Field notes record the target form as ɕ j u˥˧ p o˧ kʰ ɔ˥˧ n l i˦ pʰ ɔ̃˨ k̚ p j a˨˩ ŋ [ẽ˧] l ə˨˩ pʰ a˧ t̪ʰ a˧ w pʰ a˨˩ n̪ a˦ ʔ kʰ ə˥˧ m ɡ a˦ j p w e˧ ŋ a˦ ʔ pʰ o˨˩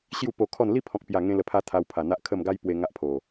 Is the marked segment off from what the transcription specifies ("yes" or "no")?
no